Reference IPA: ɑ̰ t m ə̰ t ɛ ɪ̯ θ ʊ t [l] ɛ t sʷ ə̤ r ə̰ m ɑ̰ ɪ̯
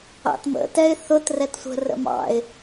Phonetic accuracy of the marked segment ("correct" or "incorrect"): incorrect